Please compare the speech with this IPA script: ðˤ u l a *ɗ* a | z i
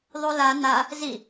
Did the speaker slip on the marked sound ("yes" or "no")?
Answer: yes